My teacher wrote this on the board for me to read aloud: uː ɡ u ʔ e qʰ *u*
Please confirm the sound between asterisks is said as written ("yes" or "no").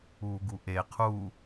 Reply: yes